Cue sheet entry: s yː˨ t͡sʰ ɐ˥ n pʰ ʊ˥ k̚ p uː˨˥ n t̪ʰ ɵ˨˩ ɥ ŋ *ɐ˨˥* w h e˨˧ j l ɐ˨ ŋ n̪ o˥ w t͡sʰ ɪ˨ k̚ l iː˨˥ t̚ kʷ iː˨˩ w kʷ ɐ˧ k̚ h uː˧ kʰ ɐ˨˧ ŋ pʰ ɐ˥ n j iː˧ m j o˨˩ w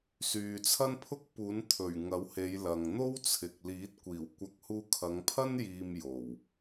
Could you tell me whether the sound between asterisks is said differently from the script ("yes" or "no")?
no